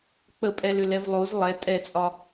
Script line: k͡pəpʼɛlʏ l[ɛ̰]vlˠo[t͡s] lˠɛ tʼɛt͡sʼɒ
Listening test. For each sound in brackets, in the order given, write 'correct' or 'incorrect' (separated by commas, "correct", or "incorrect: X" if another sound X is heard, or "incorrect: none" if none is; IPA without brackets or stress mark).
incorrect: ɛ, incorrect: z